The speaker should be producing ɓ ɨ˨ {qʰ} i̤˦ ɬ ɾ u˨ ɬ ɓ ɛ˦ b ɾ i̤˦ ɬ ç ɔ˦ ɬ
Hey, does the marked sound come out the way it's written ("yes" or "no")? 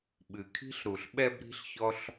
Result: no